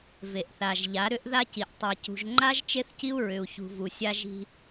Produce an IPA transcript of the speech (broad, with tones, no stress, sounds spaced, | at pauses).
v e˨ ʔ θ a˨ ʒ ʎ a˨˦ ɾ ʏ˦ ʔ ð a˦ c i˨ ʔ tˤ a˨ c ṳ˨ ʒ ŋ͡ǃ a˦ ʒ t͡ʃ e˦ θ c i˦ u̯ ɹ ʏ˨ u̯ ç ṳ˨ v u˨ sʲ a˦ ʒ i̤˦